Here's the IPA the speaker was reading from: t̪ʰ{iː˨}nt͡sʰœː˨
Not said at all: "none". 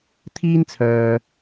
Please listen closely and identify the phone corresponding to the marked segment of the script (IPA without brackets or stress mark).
iː˥